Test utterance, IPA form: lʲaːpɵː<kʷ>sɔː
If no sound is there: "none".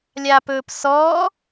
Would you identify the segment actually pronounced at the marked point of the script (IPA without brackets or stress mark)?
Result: p